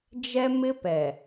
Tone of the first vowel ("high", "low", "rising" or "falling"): high